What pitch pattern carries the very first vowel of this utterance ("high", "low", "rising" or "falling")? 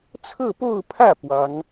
falling